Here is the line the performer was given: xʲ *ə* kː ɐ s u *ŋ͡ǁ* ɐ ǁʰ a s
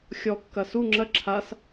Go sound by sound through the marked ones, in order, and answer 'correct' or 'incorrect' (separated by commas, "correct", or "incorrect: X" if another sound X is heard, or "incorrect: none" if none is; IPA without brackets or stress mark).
incorrect: ɔ, correct